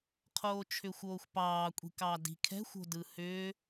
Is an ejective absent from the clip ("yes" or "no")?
no